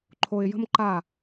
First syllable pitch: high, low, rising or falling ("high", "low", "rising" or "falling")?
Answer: low